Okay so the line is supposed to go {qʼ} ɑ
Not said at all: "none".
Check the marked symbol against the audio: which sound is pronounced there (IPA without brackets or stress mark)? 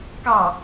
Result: k